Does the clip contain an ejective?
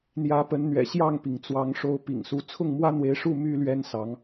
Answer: no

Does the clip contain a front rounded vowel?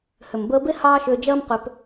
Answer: yes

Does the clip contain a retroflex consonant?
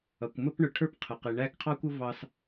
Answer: yes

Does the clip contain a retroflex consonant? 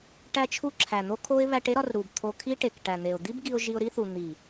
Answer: yes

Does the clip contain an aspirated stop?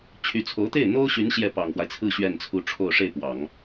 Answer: yes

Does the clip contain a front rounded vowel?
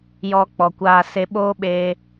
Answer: no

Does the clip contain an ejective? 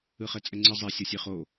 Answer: yes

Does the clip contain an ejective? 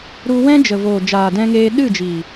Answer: no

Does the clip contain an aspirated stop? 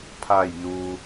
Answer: yes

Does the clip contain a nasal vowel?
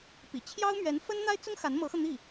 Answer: no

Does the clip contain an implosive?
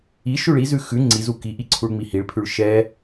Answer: no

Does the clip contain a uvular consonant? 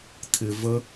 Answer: no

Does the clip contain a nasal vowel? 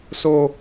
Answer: no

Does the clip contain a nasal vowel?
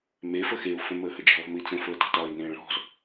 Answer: yes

